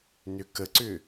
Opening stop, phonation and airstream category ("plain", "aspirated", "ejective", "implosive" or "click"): plain